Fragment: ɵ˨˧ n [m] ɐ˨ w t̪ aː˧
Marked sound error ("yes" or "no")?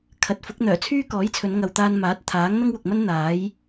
yes